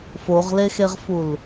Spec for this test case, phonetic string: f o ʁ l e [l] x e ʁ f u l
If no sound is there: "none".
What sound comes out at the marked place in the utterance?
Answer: none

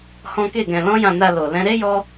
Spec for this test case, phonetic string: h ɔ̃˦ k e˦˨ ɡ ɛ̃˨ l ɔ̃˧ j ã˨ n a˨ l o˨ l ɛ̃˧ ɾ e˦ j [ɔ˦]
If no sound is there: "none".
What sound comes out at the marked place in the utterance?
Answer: ɔ˧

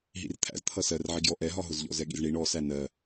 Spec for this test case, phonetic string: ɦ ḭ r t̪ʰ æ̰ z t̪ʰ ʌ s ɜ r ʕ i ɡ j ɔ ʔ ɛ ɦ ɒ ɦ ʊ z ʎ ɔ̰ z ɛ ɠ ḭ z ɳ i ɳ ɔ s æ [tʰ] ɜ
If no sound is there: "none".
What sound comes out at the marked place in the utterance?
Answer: n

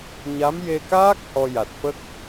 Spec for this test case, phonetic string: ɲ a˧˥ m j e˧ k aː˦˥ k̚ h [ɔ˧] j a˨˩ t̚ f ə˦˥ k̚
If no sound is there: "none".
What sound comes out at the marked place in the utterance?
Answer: ɔ˧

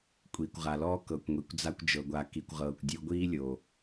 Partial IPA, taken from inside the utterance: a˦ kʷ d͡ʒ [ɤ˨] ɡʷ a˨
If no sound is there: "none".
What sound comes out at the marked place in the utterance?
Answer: ɤ˨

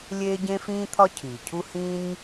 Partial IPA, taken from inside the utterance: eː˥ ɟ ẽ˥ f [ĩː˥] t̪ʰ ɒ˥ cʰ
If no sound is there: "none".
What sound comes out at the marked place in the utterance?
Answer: ĩː˥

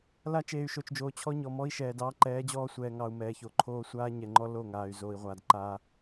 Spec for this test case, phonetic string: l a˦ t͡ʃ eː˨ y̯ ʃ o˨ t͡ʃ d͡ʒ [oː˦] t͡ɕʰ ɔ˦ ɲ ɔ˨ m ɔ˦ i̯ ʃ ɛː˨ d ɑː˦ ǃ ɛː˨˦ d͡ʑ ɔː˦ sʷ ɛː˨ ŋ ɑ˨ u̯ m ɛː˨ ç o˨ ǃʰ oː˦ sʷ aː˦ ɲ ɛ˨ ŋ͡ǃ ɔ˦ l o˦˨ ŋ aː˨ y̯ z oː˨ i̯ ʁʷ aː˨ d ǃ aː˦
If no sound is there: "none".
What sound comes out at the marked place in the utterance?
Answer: oː˨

